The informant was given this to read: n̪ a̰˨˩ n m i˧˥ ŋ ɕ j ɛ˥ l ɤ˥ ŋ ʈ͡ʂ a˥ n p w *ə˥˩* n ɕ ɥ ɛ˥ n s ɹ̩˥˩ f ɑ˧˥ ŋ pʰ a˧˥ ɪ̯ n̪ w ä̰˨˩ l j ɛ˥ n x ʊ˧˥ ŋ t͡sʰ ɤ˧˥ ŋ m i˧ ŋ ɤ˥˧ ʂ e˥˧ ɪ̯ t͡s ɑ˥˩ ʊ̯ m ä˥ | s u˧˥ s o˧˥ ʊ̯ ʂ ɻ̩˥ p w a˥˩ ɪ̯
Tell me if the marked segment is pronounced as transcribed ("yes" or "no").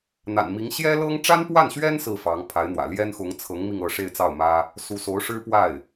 no